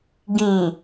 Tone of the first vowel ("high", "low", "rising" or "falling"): low